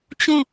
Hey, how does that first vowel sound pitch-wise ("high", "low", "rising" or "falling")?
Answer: falling